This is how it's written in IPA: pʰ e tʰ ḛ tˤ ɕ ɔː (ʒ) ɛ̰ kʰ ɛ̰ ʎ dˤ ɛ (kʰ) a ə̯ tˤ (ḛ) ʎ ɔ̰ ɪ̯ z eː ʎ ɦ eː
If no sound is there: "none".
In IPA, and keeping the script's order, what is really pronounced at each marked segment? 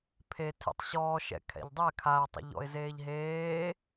ʃ, kʰ, ɛ̰

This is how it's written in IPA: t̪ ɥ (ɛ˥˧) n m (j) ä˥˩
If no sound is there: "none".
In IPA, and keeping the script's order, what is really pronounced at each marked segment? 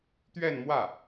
ɛ˥˧, w

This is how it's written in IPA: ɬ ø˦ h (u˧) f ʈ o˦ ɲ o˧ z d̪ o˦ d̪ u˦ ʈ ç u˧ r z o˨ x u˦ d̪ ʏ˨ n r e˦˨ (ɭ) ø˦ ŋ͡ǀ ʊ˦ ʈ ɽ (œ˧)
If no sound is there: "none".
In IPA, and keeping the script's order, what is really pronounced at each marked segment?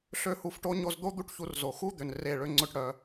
u˧, ɭ, œ˧

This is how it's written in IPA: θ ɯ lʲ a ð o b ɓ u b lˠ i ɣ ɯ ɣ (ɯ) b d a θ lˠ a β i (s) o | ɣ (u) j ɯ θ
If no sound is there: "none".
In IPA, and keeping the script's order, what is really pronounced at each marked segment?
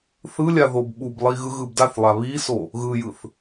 ɯ, s, ɯ

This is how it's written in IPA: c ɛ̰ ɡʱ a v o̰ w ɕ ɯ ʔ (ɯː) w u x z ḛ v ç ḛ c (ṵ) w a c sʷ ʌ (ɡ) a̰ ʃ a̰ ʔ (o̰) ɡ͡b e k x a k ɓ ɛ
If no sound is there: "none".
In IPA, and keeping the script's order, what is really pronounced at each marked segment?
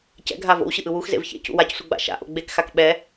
ɯ, ṵ, ɡ͡b, o̰

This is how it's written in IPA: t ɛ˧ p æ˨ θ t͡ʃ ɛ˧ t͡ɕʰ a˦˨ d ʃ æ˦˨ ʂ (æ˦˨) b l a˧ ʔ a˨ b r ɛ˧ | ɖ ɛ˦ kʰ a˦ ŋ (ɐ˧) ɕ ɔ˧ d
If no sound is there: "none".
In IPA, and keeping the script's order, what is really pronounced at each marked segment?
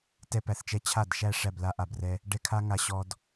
æ˦˨, a˧

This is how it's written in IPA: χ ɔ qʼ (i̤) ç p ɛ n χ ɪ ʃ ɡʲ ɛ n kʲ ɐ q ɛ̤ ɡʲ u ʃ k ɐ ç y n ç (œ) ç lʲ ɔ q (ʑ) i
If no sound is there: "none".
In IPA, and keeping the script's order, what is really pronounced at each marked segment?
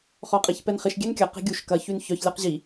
i, œ, ʑ

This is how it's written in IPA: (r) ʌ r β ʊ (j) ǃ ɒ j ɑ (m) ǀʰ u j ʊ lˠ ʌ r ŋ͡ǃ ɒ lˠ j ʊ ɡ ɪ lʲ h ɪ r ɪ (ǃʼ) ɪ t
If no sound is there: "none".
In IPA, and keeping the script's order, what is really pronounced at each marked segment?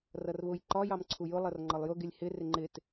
r, j, m, ŋ͡ǃ

